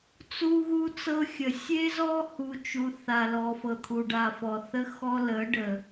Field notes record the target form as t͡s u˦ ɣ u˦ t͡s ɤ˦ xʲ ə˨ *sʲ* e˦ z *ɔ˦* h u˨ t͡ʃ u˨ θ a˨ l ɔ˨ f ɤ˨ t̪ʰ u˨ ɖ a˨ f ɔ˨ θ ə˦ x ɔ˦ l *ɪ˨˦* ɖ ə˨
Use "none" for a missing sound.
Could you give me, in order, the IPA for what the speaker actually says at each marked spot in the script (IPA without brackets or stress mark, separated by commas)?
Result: sʲ, ɔ˦, ə˨˦